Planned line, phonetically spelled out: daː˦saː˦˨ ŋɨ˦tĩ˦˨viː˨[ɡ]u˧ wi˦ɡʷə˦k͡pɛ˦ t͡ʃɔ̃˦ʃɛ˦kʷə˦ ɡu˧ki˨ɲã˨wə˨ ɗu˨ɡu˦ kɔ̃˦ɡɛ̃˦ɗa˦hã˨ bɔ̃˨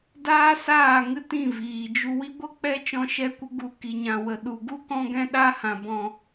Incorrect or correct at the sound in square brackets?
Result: incorrect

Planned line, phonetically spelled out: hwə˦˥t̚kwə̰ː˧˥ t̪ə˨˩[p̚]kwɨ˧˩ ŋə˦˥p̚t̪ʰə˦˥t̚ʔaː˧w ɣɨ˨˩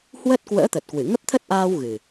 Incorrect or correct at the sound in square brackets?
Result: incorrect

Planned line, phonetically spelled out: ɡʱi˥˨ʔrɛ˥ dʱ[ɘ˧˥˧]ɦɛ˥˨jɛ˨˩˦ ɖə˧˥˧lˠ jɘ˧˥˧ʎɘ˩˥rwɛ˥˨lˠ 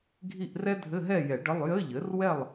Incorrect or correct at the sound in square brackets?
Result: correct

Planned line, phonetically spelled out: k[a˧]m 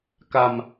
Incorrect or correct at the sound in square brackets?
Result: correct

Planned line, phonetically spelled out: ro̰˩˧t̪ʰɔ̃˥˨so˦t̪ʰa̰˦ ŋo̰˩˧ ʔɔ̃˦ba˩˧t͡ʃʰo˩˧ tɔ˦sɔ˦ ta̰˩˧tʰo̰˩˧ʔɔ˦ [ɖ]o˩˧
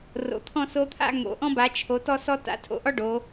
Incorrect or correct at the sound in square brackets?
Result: correct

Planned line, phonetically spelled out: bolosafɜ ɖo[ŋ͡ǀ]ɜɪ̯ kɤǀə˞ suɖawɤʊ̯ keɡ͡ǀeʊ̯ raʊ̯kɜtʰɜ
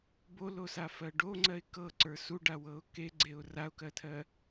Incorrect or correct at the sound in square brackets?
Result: correct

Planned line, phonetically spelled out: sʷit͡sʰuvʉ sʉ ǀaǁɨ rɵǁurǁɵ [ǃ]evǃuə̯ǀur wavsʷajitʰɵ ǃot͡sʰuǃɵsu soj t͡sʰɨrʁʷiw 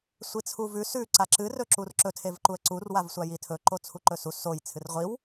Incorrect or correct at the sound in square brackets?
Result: incorrect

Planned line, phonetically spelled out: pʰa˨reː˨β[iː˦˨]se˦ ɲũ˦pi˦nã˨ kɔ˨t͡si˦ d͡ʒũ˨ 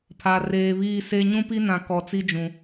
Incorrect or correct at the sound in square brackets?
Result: correct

